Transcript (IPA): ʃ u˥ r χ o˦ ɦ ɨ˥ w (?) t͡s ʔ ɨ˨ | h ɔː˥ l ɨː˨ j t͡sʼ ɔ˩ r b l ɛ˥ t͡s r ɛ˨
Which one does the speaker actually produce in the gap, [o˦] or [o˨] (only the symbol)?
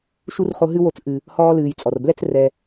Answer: o˦